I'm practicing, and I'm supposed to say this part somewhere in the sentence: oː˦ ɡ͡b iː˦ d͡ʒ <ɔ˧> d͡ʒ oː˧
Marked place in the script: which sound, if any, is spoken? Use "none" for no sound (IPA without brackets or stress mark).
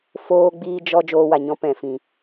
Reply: ɔ˦